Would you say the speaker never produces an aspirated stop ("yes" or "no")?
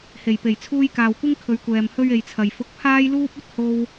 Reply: no